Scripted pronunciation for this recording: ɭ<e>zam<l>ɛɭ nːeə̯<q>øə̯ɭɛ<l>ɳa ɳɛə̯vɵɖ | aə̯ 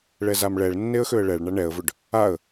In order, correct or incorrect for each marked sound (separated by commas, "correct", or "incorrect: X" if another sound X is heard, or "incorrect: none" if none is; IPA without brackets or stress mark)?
incorrect: ɛ, incorrect: ɭ, incorrect: x, incorrect: ɭ